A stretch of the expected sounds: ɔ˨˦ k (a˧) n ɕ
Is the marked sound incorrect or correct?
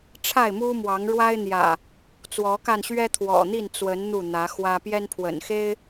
correct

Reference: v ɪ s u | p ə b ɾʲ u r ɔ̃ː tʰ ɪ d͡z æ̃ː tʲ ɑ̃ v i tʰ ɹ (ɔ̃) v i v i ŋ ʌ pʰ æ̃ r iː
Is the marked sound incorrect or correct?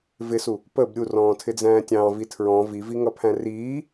correct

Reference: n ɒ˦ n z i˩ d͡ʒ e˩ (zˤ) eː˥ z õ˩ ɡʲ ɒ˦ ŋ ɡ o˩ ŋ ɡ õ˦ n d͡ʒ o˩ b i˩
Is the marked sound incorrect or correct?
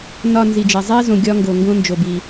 correct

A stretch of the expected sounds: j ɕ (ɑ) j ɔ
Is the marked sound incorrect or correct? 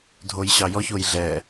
correct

